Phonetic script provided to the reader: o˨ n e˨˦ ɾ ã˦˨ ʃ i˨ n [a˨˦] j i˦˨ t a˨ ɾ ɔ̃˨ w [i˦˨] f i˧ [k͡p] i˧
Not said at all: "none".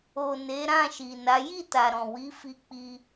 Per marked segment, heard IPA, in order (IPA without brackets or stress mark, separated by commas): a˨˦, i˨˦, k͡p